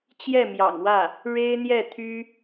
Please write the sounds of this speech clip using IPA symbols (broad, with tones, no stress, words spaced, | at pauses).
t͡ɕjɛ˥˩mjɑ̰˨˩ŋwä˥˩ | ɻe˥ɪ̯n̪jɛ˥˩t̪ʰy˥